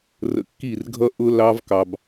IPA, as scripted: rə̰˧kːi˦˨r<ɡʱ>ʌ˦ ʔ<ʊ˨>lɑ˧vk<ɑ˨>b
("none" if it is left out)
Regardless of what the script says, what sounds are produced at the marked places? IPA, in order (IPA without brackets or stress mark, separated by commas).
ɡʱ, ʊ˧, ɑ˨